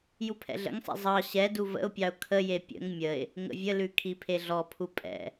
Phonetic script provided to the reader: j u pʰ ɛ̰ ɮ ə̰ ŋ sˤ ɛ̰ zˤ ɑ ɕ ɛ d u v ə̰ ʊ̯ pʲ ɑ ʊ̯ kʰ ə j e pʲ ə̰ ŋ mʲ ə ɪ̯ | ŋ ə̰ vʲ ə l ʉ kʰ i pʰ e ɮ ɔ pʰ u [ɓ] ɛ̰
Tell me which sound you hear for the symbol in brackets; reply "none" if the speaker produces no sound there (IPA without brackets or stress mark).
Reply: pʼ